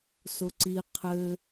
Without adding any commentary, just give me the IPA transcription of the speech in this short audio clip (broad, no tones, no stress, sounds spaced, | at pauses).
s ʊ ǀ i qʰ ɘ